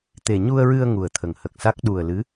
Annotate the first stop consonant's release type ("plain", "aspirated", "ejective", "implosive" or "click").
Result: plain